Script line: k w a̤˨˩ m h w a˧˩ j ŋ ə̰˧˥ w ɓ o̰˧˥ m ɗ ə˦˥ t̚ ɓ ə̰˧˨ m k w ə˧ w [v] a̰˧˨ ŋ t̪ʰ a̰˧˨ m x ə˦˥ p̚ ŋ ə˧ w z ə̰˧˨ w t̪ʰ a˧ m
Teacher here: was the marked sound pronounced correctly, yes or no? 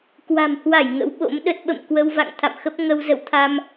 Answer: yes